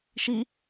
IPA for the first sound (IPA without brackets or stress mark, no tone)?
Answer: ʃ